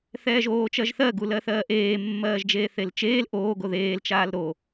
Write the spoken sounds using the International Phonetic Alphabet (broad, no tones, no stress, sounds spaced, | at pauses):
θ ɛː ʒ oː t͡ʃ ɜ ʒ θ ɜ ɡ u l ɜ θ ɜː ʔ eː mː ɜː ʒ d͡ʒ eː θ e l t͡ʃ eː l ʔ oː ɡ o ð eː l t͡ʃ aː l ɾ o